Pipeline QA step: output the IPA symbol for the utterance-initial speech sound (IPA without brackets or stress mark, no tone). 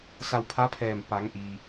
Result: s